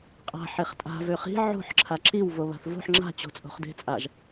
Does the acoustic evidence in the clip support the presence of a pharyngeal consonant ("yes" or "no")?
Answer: yes